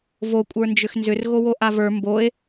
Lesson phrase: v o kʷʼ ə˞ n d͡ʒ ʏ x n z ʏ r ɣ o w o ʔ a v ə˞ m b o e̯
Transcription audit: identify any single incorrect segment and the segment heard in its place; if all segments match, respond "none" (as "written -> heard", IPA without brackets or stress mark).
none